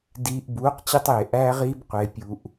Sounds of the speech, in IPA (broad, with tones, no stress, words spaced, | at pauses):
diː˧ʔ buː˨˦qt͡ɕi˧tˤeː˨ ʔæː˦ʁiː˦b qʷe˧pʲu˧ʔ